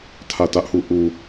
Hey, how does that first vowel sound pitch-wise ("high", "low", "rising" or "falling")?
falling